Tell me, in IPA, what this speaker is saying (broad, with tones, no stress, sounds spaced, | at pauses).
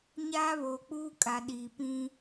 ɲ aː˦ β oː˨ k͡p uː˦ kʼ a˨ ɗ iː˨ p ĩ˦